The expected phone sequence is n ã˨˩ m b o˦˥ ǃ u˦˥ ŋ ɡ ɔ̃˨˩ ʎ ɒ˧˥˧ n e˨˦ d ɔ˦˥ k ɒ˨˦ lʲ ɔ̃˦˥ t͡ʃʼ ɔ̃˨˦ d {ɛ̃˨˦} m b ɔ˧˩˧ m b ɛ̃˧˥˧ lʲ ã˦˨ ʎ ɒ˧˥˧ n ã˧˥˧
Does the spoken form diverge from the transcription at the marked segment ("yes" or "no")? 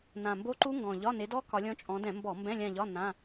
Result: yes